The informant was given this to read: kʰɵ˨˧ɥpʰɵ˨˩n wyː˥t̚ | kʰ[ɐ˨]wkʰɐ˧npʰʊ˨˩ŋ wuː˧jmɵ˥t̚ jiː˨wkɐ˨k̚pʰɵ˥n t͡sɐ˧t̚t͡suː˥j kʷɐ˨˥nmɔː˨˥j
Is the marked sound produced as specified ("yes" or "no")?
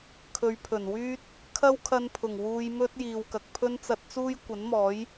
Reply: no